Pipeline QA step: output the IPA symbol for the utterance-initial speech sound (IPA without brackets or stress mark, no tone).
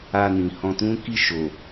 a